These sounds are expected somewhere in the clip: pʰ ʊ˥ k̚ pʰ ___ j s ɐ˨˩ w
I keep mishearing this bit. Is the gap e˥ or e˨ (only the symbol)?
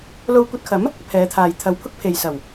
e˨